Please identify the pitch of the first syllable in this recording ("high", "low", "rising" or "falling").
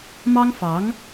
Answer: high